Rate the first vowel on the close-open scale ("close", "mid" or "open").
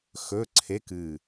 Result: mid